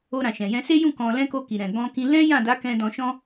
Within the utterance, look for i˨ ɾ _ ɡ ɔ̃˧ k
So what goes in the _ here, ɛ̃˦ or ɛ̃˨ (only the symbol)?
ɛ̃˨